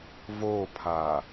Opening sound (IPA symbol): v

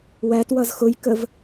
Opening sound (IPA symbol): w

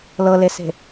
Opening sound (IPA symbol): l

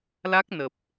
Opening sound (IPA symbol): l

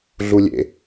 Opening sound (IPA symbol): ɮ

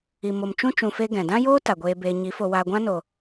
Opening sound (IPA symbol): i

